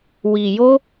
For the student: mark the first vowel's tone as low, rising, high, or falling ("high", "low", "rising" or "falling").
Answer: low